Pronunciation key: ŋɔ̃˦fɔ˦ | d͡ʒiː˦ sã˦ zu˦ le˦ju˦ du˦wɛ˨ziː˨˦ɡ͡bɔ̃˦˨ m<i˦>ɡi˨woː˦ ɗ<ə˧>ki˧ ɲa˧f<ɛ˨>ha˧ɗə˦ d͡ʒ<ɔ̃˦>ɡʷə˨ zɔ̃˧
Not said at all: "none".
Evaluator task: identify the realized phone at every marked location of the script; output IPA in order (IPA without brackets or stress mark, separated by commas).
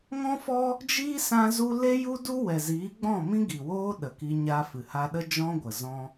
ĩ˦, ə˨, ɨ˨, ɔ̃˦